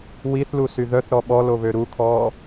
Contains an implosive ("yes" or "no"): yes